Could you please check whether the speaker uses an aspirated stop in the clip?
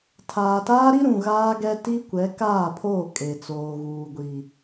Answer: yes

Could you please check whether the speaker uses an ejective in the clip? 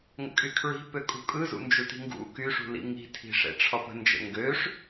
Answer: yes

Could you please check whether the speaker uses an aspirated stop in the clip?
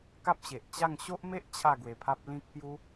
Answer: yes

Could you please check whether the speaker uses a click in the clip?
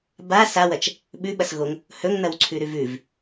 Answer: yes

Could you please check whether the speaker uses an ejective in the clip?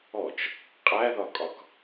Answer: yes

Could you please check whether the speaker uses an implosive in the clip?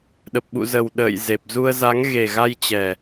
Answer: yes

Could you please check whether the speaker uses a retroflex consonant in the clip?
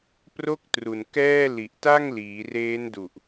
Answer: no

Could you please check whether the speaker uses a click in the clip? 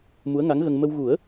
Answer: no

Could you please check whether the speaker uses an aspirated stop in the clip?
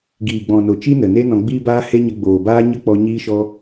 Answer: no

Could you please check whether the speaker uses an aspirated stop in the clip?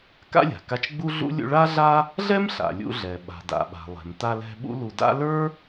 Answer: no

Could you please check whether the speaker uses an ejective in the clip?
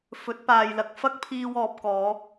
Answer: no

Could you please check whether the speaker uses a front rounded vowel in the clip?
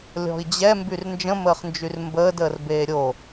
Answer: yes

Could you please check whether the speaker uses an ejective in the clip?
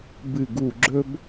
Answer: no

